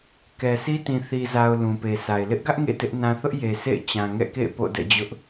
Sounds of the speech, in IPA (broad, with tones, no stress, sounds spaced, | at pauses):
k ɛ˨ s i˦ t ĩ˨ θ i˨ z a˨ ʊ̯ l ũ˨ p e˨ sʰ a˨ ɪ̯ l ɪ˦ ʔ ɡ ä˦ ʔ ŋ ḛ˦˨ t ɪ˦ ʔ n ã˦ θ ʊ˦ ʔ j e˨ s ḛ˦˨ ɪ̯ t͡ɕ ã˨ ŋ ɛ̰˦˨ k ḛ˦˨ ɪ̯ p o̰˦˨ d ɛ̰˦˨ d͡ʑ ʊ˦ ʔ